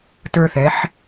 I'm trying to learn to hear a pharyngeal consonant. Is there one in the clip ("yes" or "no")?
yes